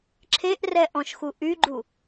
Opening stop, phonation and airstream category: click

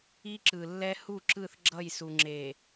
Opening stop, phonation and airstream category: click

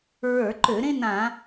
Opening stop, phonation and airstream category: click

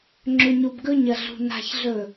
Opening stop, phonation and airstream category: click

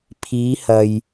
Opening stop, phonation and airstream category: aspirated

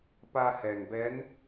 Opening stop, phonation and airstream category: plain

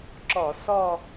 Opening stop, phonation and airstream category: click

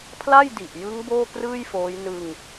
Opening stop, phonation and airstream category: aspirated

